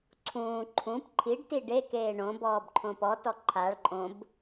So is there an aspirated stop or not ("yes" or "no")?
yes